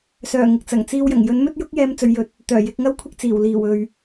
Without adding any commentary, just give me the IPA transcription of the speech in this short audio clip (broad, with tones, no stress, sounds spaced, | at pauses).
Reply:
s œː˨˩ ŋ ɪ˨ k̚ t͡s ɐ˨˩ ŋ t͡s iː˧ w j ɐ˨˩ ŋ j ɵ˨˥ n m ɵ˥ t̚ j ʊ˥ k̚ j ɛː˥ m t͡s ɵ˧ ɥ j ɵ˧ t̚ | t̪ œː˨˩ j ɪ˨˥ k̚ ŋ ɐ˥ w kʷʰ ɪ˥ k̚ t͡s iː˨˩ w l iː˨˩ w ɵ˨ ɥ